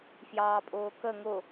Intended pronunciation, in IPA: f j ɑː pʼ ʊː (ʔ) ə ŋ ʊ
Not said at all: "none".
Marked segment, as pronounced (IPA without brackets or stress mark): k